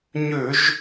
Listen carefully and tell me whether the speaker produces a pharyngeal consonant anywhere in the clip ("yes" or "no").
no